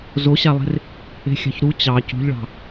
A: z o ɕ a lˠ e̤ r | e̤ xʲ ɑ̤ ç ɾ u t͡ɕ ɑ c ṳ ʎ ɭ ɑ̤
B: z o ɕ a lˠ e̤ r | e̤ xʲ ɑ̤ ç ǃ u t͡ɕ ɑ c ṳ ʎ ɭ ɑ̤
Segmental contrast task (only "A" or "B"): A